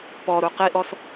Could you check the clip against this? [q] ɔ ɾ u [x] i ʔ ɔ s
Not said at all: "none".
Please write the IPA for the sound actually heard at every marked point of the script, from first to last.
p, q

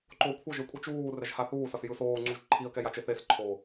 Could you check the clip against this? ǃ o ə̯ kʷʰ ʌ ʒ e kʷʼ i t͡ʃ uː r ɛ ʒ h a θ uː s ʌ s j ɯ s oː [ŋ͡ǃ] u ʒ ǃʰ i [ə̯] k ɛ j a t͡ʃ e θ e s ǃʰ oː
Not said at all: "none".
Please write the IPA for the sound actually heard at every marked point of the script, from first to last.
ŋ͡ǀ, ə̯

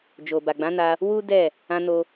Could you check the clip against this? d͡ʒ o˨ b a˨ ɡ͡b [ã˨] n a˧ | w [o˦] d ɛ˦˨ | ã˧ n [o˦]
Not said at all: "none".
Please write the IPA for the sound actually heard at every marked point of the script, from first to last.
ã˨˦, u˦, o˧

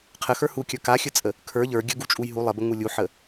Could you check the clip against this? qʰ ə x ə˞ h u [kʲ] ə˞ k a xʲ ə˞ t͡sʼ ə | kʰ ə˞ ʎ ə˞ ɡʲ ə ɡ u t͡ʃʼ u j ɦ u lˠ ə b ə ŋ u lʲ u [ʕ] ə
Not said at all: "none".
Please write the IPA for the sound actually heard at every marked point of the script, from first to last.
kʲ, ħ

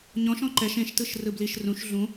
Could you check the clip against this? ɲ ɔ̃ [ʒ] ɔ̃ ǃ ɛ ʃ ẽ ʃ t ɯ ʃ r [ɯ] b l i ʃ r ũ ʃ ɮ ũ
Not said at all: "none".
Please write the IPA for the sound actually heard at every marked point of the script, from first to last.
ʃ, ɯ

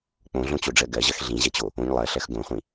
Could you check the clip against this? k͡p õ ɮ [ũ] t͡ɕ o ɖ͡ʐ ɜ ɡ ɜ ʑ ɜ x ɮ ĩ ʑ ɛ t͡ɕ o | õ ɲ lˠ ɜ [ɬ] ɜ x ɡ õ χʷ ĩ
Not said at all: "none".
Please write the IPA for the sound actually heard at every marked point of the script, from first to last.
õ, ɬ

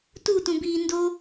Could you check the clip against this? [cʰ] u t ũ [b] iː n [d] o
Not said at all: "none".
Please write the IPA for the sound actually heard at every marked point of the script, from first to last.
t, b, d

